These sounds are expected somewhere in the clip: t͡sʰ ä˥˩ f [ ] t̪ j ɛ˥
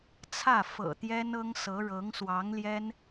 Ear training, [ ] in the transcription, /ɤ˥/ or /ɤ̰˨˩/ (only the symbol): ɤ̰˨˩